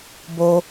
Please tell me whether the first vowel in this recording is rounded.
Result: yes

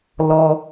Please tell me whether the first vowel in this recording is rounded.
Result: yes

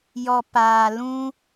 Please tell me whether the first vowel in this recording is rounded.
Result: yes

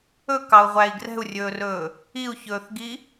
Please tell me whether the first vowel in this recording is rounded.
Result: yes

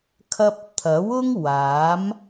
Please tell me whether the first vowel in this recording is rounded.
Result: no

